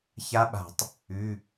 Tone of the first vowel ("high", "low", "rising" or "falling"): rising